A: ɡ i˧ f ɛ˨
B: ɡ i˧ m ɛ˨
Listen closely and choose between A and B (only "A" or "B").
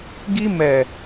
B